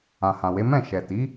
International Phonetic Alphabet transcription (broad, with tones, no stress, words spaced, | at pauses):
ã˨hã˨we˨˦ mɛ̃˦˨ ʃɛ˨ti˨˦